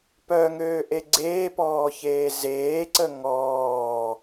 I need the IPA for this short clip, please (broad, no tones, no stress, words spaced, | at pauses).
pœŋøːʔe ɡ͡ǀeːpɔːçeː zeːǀə ŋɔː